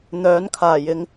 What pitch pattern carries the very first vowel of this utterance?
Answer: rising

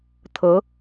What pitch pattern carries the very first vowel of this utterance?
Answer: rising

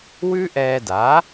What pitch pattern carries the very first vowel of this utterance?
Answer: high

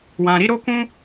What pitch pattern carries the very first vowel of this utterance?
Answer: low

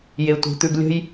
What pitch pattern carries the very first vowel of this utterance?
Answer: low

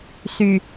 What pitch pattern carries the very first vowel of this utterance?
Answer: low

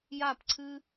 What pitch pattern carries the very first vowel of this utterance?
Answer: falling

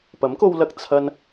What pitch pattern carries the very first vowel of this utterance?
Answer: rising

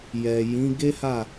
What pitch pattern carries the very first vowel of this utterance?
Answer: low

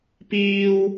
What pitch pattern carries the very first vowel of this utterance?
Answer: high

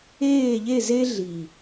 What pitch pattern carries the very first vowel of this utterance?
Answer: falling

